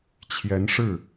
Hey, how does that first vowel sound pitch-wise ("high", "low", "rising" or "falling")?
rising